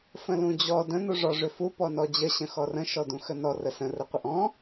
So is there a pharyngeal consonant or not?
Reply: no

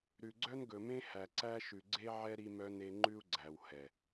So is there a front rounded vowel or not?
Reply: yes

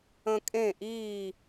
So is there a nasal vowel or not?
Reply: yes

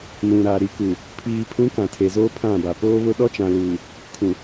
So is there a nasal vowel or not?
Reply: yes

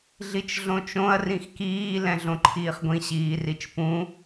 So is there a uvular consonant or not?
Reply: yes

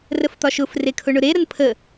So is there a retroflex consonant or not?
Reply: yes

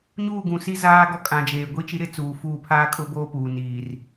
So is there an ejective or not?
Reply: yes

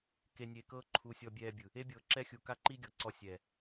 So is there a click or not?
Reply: yes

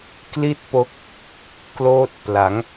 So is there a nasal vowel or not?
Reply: no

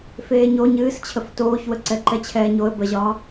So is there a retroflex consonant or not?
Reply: no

